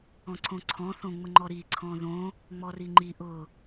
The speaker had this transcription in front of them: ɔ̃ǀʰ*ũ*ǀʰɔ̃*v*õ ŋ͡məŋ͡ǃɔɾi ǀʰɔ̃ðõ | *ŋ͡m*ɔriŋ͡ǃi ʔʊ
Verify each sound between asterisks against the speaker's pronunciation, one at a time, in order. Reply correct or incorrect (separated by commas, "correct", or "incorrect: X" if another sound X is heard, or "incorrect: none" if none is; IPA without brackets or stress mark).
incorrect: õ, incorrect: θ, correct